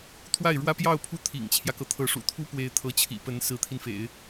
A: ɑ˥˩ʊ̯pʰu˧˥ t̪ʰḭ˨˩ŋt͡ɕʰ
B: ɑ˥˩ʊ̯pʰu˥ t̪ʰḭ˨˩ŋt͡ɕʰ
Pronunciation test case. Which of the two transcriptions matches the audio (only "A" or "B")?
B